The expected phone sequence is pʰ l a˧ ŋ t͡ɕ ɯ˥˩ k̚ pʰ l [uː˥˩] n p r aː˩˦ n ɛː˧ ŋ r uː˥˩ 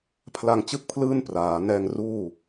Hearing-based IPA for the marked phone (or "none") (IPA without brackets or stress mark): ɯː˥˩